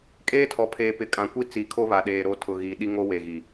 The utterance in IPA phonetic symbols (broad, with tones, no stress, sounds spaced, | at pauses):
kʼ eː˦ tʰ ɔ˨ pʰ eː˨ p ɪ˨ kʼ ã˨ kʷ i˦ t͡s i˨ kʰ o˦ β a˨ ɗ eː˨ ɾ o˦ tʰ ʊ˨ ɣ iː˨ ɗ i˦ ŋ o˦ w e˨ ɣ i˨